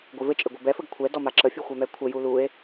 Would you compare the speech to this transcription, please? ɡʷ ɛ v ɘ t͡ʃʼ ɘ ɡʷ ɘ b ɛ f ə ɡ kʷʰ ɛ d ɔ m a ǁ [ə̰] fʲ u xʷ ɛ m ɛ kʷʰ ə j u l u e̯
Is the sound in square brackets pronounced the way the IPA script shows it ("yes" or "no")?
no